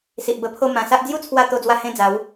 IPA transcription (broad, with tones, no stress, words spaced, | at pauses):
si˨ʔbə˧pʰo˥˧ mã˨˩sa˦ʔ d͡zju˥˧t͡sʰwa˧ t̪o˧d͡zwa˧ hẽ˦d͡za˨˦w